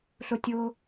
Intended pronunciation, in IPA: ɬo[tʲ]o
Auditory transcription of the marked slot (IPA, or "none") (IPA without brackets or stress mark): tʲ